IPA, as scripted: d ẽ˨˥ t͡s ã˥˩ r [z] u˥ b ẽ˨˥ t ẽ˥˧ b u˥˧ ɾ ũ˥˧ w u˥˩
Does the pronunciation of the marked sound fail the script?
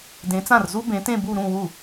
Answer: no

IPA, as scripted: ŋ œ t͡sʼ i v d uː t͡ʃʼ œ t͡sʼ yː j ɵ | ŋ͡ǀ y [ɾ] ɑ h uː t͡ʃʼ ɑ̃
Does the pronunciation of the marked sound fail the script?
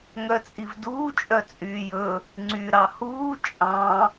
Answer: no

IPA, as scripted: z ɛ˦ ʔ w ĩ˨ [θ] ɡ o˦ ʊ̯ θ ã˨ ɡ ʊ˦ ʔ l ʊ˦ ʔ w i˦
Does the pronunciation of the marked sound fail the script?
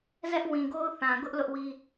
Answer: yes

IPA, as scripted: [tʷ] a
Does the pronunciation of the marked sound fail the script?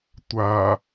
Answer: no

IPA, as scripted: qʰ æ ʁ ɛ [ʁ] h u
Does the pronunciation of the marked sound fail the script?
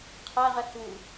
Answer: yes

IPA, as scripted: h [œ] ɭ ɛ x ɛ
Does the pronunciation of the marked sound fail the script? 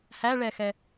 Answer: yes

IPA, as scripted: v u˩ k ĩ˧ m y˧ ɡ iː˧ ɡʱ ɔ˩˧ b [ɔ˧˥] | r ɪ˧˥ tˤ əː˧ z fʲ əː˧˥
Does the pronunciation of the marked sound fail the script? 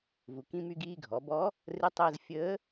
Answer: no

